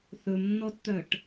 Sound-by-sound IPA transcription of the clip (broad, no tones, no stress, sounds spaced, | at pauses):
θ ɵ m nː ɔ t t̪ œ ʈ